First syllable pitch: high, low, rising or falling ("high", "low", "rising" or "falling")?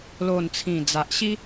low